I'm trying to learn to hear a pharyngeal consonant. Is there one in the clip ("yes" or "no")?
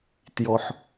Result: yes